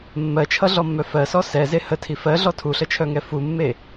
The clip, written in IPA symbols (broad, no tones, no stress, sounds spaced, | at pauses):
mː ɜ t͡ʃʰ ʌ ɮ ɔ mː œ f ɜ s ɔ s ɛ z e h ə tʰ i f ɜ ɮ ɔ tʰ u ɬ ə t͡ʃʰ œ ŋ ɛ f u mː e